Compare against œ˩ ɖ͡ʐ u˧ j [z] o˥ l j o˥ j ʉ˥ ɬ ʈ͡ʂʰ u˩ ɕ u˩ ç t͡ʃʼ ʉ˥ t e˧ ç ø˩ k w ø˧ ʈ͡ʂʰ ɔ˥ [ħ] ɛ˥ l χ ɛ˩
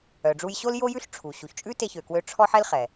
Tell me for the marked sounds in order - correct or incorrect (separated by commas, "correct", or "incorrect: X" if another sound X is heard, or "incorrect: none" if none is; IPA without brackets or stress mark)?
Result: incorrect: ɕ, correct